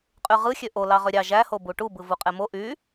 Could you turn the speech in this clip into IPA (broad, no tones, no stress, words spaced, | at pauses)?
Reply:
qʼyʁɯ xʲøʔo lɑʁøɾʲɑ ʒæho buʈu bɯvuqʼemo ʔy